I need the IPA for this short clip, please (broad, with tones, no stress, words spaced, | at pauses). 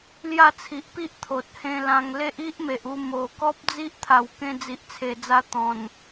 lja˥˧t͡sʰi˨ʔpi˦ʔ t̪ʰo˨t̚hẽ˧lã˧ŋ le˦ʔ i˦ʔme˨ʔu˧ mo˨˩ kɔ˦p̚d͡zi˦ʔt̪ʰa˨˩w kẽ˧d͡zi˨ʔt͡sʰe˨˩ d͡za˧ t̪ɔ̃˨˩n